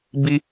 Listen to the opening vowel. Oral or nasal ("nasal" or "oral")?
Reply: oral